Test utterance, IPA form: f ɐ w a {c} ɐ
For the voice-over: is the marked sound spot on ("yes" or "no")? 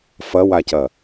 yes